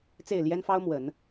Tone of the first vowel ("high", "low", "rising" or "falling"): falling